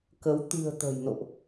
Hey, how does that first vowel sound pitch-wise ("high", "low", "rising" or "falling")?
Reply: rising